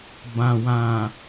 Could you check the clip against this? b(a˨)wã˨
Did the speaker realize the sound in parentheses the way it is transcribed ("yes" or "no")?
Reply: no